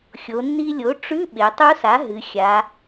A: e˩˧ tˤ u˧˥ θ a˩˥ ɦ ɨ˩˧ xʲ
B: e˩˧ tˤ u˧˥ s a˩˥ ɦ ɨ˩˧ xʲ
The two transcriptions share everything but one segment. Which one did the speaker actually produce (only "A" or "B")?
B